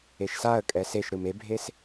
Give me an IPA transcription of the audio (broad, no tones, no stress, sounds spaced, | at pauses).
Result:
e ʃ s a ə̯ kʼ ɛ s e ʃ ɾ ɯ m e bʱ e s